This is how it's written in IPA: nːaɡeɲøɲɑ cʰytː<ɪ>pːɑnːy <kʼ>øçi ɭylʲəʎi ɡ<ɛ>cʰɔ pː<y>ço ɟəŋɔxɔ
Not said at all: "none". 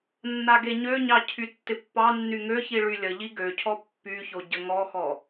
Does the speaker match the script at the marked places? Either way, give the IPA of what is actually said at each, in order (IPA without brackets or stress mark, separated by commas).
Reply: ɪ, ŋ, ø, y